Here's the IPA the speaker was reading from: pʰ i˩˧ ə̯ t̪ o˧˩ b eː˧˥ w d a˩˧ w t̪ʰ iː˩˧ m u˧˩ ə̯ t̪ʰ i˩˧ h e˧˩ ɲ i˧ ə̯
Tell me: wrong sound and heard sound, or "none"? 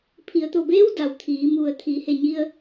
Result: none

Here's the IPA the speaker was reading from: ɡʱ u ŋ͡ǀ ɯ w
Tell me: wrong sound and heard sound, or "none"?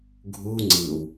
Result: none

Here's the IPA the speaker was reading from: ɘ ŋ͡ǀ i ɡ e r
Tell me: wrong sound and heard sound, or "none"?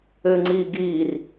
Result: e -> i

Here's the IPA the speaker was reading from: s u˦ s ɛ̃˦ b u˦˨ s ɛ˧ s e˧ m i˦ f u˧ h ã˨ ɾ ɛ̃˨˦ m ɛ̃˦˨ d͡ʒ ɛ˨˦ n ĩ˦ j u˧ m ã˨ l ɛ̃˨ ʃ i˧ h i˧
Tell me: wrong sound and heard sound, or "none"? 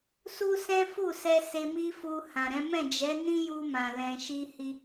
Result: b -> f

